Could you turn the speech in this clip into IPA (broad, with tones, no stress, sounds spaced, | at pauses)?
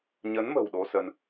ɲ ə˨˦ n m ə̤˨˩ w ɗ o˧ s ə˧ n